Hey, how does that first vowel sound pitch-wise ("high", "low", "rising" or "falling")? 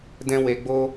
high